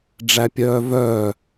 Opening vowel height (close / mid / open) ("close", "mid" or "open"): open